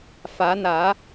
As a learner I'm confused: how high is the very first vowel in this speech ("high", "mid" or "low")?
low